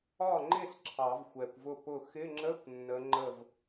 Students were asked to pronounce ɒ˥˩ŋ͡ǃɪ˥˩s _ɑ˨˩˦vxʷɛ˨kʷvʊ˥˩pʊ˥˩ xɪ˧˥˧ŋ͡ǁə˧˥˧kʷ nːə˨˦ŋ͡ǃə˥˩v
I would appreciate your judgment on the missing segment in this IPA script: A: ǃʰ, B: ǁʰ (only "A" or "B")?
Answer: B